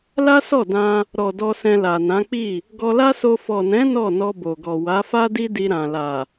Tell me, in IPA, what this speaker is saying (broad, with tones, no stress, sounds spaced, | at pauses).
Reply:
l a˦ s ɔ˦˨ d ã˧ | ɾ ɔ˨ d ɔ˧ s ɛ̃˧ l a˨ n ã˨˦ k͡p i˦˨ | ɡ ɔ˧ l a˦ s o˧ f ɔ˨ n ɛ̃˨˦ n ɔ˦˨ n ɔ˧ b o˨ ɡ ɔ˨ w a˨˦ f a˦ d i˦ d i˧ ɾ ã˨ l a˨